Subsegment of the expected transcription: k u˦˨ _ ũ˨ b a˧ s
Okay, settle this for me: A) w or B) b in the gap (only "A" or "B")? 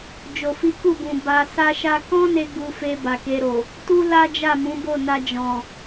B